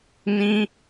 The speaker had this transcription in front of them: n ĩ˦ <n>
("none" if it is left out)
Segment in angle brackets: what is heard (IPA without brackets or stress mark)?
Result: none